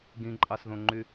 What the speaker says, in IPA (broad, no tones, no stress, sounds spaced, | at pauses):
ɡ ĩ ǃʼ ɑ s ð õ ŋ͡ǃ y